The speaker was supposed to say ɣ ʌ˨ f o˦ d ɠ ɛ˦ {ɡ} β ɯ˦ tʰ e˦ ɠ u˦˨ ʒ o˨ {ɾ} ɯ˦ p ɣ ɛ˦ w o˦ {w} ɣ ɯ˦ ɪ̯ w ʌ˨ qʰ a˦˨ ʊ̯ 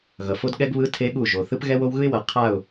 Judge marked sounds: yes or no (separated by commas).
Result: yes, no, yes